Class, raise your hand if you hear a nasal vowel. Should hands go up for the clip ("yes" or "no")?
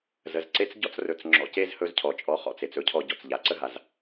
no